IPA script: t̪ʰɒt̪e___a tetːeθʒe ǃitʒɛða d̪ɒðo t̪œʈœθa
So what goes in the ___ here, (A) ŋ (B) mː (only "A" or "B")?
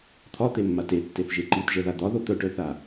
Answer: B